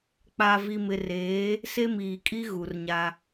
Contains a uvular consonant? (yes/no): no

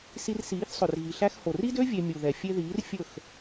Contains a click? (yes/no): no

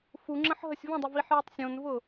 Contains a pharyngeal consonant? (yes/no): yes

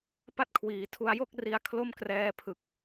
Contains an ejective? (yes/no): no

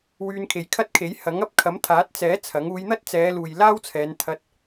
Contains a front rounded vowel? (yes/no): yes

